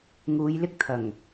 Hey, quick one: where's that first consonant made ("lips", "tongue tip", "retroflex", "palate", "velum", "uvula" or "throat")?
velum